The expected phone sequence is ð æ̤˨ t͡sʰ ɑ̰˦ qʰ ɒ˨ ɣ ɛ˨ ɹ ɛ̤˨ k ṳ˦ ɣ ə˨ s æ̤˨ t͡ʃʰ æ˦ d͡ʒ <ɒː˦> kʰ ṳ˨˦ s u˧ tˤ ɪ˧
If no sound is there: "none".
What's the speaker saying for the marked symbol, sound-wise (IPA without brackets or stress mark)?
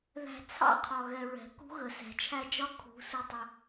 ɒ˦